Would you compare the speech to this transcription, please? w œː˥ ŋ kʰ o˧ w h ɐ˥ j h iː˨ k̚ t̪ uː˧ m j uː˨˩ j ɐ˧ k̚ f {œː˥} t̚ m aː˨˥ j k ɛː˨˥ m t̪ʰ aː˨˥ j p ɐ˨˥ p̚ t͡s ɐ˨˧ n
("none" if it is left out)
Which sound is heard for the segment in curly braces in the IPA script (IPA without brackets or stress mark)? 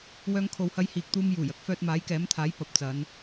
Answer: œː˧